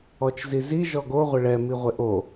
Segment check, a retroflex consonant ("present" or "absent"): present